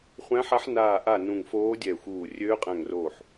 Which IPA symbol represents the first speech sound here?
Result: χʷ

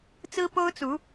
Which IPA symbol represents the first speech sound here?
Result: t͡s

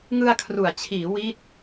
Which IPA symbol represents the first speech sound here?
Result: ŋ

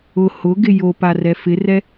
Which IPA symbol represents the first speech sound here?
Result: ʊ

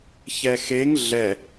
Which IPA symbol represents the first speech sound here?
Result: ç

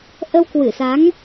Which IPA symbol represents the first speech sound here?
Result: ʔ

